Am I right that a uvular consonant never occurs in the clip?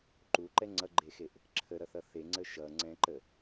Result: yes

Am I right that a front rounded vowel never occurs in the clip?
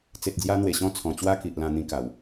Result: yes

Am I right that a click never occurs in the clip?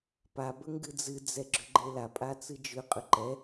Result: no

